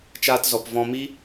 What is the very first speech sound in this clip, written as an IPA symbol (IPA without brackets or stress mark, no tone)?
t͡ʃ